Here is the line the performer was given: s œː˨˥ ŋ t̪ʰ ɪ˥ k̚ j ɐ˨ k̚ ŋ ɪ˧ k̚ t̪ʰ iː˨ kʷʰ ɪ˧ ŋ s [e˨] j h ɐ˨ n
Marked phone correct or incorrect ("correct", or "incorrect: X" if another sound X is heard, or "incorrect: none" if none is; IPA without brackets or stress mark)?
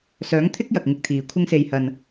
correct